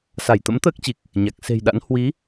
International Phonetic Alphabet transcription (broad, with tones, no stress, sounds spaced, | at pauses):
s a˧˩ j t̪ ə̰˧˥ m t̪ əː˦˥ k̚ t͡ɕ i˨˩ k̚ | ɲ a˨˩ k̚ s e̤˨˩ j ɗ a̰˧˥ n h w i˨˦